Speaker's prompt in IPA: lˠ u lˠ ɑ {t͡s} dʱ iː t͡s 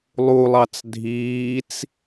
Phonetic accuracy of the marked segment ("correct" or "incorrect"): correct